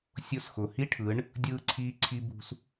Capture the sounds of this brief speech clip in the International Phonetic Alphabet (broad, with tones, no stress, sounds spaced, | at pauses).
sʲ ʊː˧ s x ʊː˨ h i˦ ʈʰ ɯ˨˦ ɳ | dʲ ɯː˧ ǀʰ iː˧ ǀʰ i˧ b ṳ˧ s